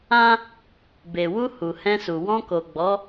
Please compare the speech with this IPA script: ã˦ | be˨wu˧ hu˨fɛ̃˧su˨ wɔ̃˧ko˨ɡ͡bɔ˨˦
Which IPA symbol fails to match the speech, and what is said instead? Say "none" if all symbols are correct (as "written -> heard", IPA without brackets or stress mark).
f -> h